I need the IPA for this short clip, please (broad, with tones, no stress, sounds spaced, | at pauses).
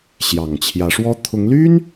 ɕ j ɑ˨˩ ŋ t͡ɕʰ j ä˧˥ ʂ w ɔ˥ t̪ʰ ʊ˧˥ ŋ l y˥ n